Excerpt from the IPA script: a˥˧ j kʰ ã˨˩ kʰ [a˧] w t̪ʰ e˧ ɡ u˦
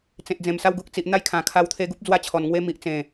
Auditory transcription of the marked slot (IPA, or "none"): a˧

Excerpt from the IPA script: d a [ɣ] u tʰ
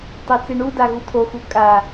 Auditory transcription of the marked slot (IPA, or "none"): ɣ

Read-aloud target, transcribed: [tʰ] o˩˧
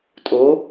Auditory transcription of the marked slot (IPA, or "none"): tʼ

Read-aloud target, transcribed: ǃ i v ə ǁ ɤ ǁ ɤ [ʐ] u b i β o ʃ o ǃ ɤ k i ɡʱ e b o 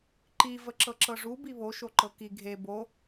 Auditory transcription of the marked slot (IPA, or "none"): ʐ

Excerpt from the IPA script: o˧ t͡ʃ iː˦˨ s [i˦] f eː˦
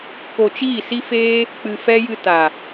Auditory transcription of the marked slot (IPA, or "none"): i˦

